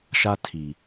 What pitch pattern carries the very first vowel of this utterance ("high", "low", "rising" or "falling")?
high